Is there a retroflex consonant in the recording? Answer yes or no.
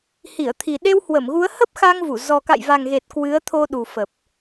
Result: no